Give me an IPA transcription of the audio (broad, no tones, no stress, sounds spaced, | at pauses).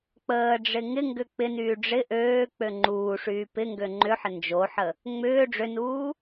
k͡p əː ɖ͡ʐ ɪ ŋ ɪ ŋ ɡ ʏ k͡p ɪ n yː ɖ͡ʐ ɪ ʔ øː k͡p ø ŋ͡ǃ uː ʂ yː p ɪ ŋ ɡ ø ŋ͡ǃ ʏ ħ ə n d͡ʒ o ħ ə | ŋ͡m ʏː ɖ͡ʐ ʏ n uː